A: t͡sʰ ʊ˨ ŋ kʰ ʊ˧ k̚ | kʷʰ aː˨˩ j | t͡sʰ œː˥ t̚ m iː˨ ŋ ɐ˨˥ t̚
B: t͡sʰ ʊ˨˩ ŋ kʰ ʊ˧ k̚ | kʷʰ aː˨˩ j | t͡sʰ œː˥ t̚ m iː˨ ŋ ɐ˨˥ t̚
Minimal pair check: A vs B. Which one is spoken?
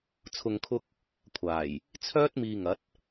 A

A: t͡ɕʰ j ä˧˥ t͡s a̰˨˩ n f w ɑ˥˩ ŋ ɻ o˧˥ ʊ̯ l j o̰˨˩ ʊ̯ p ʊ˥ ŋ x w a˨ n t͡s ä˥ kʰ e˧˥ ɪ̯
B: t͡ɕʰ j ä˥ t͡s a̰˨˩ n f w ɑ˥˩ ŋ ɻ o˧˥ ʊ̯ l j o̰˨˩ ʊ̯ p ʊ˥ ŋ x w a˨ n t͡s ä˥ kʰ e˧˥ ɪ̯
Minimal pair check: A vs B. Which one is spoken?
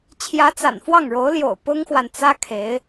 A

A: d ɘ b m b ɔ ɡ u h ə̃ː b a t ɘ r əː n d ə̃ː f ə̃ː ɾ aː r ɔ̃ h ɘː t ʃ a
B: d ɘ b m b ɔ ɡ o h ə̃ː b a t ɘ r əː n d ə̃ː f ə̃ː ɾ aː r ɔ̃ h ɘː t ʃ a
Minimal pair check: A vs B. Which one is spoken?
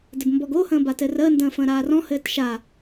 B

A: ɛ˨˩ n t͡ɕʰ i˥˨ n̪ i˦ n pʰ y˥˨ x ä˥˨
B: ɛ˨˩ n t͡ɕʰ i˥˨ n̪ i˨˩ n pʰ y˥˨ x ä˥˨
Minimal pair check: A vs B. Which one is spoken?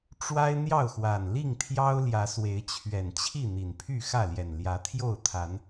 B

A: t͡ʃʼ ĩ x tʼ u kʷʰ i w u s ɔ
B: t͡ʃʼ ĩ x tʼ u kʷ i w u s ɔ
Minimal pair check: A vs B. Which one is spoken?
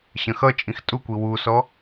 B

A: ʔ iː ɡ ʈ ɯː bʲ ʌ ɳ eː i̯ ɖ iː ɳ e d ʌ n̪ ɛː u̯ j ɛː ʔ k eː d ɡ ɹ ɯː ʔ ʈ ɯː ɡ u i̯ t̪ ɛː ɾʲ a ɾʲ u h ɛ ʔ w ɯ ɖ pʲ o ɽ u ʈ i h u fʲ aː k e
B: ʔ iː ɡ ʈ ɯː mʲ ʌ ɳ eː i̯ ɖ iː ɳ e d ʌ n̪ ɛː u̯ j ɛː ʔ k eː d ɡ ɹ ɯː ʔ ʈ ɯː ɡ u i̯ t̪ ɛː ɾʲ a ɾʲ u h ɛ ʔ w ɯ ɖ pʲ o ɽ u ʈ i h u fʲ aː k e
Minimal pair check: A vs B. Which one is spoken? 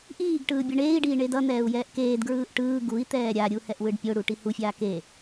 A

